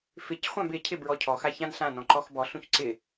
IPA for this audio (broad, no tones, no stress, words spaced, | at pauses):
fɪcχʷãb ɪcʰɪ bɹɔcʰɔxa çãnɬãnɔ̃ ǃɔxbɔɬũç ǀɪ